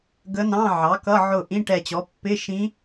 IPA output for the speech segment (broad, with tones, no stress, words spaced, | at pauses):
ɡə˧˥nɑ̃˧˥˧ ʕɑ˩˥kʌ˧˥˧ ʕʊ˧˩ ʔĩ˧˥˧ʈɛ˧˩t͡ɕɔ˩˥ pːɪ˧˥˧ ʃĩ˧˥